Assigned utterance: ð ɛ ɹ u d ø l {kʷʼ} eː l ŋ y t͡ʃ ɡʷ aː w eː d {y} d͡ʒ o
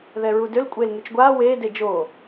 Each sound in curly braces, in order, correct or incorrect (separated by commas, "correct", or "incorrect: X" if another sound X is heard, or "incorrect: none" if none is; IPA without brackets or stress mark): correct, incorrect: e